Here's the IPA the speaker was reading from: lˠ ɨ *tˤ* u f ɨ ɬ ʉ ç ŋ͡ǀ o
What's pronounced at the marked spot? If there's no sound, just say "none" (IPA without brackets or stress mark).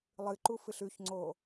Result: ǃ